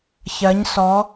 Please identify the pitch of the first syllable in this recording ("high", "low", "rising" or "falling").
rising